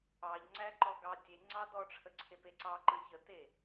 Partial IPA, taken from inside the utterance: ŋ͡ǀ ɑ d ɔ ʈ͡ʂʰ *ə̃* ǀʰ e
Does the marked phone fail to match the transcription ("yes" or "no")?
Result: yes